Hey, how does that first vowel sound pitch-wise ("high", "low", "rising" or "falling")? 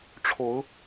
rising